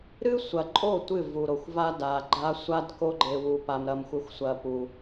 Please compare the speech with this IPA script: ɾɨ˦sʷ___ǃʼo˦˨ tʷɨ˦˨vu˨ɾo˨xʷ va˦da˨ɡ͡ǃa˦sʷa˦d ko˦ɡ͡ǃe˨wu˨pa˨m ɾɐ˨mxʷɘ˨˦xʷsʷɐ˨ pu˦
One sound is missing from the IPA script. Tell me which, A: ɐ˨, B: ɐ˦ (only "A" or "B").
A